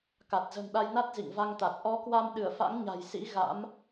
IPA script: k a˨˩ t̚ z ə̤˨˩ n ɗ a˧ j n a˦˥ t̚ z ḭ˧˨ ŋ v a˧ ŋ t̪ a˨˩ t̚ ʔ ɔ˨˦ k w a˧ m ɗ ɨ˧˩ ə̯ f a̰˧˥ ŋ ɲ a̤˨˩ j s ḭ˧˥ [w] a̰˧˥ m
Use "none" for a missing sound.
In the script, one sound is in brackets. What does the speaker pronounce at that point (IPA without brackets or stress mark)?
ɣ